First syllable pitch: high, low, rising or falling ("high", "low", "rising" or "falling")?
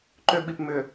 high